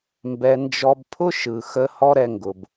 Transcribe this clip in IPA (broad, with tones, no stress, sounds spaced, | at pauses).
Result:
m b ɛ˨ n d͡ʒ ɔ˧ b pʰ ʊ˦ ʃ ɯ˨ x ə˧ h ɔ˦ ɾ ɛ˧ ŋ ɡ ʊ˨ b